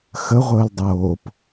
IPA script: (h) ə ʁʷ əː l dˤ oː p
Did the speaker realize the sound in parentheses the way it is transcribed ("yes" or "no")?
no